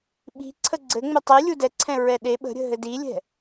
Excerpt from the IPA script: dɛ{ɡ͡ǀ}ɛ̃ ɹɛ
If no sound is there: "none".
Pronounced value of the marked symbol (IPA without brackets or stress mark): ǀʰ